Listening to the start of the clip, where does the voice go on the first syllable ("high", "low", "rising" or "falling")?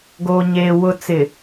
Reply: low